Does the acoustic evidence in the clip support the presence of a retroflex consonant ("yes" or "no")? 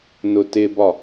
no